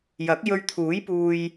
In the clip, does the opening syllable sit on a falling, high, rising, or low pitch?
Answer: rising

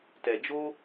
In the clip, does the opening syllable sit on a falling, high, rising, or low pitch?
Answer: low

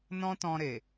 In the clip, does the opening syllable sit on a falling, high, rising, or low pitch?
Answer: high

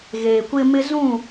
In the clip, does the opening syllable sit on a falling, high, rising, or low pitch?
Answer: low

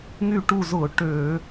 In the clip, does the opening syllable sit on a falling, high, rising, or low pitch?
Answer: falling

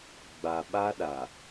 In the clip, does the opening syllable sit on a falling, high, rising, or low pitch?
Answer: low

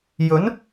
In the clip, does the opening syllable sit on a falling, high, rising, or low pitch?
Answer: rising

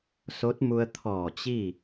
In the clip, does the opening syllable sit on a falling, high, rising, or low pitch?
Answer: rising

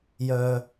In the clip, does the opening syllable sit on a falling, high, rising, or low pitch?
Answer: low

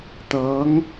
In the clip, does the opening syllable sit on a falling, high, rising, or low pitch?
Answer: rising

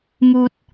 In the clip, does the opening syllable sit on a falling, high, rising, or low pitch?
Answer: low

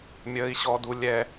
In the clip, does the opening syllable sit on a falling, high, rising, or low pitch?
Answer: high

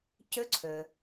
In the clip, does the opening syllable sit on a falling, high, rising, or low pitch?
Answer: rising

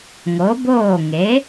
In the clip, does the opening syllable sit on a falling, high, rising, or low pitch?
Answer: rising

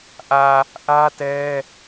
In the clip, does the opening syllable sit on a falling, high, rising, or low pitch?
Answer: low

